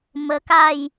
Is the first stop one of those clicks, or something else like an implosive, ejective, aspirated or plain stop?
plain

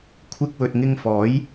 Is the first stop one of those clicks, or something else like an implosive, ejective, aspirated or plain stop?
aspirated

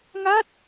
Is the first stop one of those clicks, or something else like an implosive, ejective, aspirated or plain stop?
plain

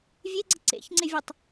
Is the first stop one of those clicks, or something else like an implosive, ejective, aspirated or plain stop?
click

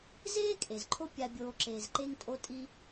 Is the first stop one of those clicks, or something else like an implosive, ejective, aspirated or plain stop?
ejective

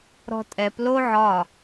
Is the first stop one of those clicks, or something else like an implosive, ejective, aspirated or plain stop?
ejective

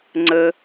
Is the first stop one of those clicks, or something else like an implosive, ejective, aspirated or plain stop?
click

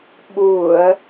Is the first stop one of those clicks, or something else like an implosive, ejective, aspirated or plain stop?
implosive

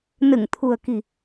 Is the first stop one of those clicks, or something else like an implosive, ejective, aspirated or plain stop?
aspirated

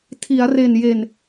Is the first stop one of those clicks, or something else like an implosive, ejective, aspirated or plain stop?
aspirated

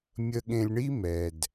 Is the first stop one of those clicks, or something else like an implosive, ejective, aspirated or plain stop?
implosive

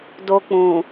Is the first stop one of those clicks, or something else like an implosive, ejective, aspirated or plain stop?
plain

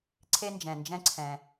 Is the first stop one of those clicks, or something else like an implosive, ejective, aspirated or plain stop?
click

